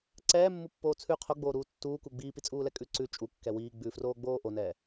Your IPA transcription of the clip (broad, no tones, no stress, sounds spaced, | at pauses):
ǀ ɛː mː u pː oː t͡sʰ ʉ qʰ o ɡ͡b oː ɾ uː tː uː k u ɡ͡b iː p i t͡sʼ uː l ɛ kʼ ʉ ǀ ʉ t͡ʃʼ u kː ɛ w iː ɡ͡b ʉ f r oː ɡ͡b oː ʔ o n ɛː